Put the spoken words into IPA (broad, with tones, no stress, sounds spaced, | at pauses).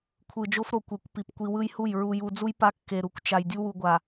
kʷʰ ɯ˨ d͡ʒ o˦ f ɾ o˨ kʷ e˨ kʷ p i˨ p kʷ i˨ w ɯ˦ j h u˦˨ j ɹ u˨ j u˨ d͡z u˦ j p a˦ kː e˨ ɾ u˨ kʷ t͡ʃ a˨ j dʲ u˦ w u˨ ɡʷ a˨